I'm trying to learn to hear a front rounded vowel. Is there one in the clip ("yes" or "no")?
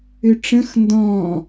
yes